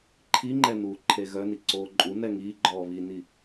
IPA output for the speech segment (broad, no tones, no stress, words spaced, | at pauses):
ǃʰiŋ͡ǃɛ nuːǃʰeɣœni ǀoːǃʼunɛ ŋiːɡ͡ǃɔː βini